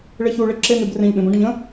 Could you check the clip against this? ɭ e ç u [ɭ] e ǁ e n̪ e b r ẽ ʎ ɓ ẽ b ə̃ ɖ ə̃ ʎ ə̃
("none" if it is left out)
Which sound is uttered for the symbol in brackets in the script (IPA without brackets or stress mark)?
ɭ